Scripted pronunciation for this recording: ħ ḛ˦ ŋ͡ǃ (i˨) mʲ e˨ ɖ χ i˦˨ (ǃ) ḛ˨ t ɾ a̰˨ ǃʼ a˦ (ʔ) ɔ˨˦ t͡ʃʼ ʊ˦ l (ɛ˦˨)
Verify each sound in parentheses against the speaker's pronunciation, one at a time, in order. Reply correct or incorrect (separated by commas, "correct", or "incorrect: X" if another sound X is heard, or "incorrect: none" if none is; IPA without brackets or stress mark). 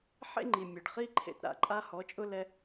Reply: correct, incorrect: ǃʰ, incorrect: h, incorrect: ɛ˦